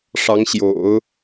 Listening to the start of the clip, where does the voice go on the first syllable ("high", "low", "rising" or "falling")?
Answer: rising